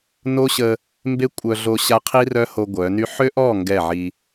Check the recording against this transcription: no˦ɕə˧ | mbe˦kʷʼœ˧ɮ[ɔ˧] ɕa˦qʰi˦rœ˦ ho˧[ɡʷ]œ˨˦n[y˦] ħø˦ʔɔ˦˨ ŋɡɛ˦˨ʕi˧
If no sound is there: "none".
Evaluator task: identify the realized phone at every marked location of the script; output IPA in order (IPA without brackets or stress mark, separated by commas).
o˧, ɡʷ, y˦